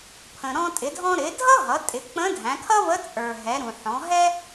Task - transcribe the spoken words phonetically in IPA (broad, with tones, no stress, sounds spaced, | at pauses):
pʰ ə̃˩ ɾ ɔ̃˧ tʼ ɪ˩˧ dʱ ɔ̃˧ ɾ ɪ˩˧ dʱ ʌ˥ ɦ ʌ˩˧ tʼ ɪ˩˧ k͡p ə̃˧˥ dʱ æ̃˩˧ kʰ ʌ˥ v ə˧˥ t͡sʼ ə˞˩ ɦ ɛ˩˧ ɾ ũ˩ ħ ɔ̃˩˧ ɦ ɛ˥